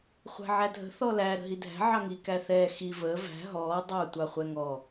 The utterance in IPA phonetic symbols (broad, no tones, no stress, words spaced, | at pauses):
χʷæ̤ʕædʱə̤ θɔlæ ɾə̤ɦidʱæ̤ ʕɑŋi kæθɛː xi vəː væ̤ ɦɔː dˤɑ tʷɑχʷɛŋɔ